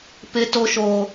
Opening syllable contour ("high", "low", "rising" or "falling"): high